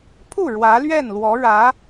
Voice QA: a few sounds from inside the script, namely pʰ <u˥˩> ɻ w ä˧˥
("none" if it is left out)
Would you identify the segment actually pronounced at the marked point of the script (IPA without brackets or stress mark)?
u˥˩